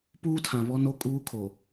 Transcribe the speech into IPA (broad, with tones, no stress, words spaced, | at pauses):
puː˦tʰã˨ βɔ˦no˦ kʼuː˦kʰo˨